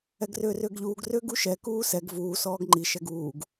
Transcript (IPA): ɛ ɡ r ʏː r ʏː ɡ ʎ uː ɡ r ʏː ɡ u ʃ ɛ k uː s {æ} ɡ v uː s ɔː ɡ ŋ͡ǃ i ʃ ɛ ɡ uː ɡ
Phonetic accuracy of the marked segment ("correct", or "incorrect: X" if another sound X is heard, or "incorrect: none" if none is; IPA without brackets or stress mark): incorrect: ɛ